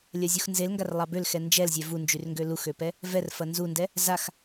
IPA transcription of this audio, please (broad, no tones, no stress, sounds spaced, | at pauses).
lʲ ɐ zʲ u x n z e l ŋ ɡ a r lˠ ɑ b ø l x ɛ n d͡ʒ ɛ l zʲ ɛ v u n d͡ʒ y r ŋ ɡ ø l u x ø p ɛ | v ɛ r f ɐ n z u n d ɛ | z a x